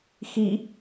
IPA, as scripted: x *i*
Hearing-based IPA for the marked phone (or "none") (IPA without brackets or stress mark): i